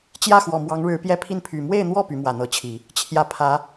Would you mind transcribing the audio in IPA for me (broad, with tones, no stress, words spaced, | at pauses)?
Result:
t͡ɕjä˥˩xwɔ˨˩ mwɑ˧˥ŋɻɻ̩˧˥pjɛ˥˧ pʰi˥˩npʰy˨˩ mwe˥˧ɪ̯n̪wɔ˥˩ py˧˥mwä˨˩n̪ɤ˧˥t͡ɕʰi˨˩˦ | t͡ɕʰjä˥˩ pʰä˧˥